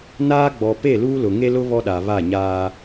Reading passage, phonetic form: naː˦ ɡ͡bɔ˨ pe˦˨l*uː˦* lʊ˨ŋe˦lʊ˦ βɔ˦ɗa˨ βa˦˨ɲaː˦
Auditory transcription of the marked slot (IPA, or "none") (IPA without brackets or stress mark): uː˦